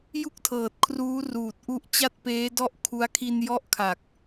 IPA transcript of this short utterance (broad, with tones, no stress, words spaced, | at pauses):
ju˥˩k̚tʰɤː˨˩t̚kʰruː˦˥ruː˨˩t̚ ʔu˦˥ʔt͡ɕa˥˩t̚peː˦˥ dɔ˥˩ʔkʰu˦˥a̯ kʰi˧njɔ˦˥ʔkʰa˨˩k̚